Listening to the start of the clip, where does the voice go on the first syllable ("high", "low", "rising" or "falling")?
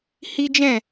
high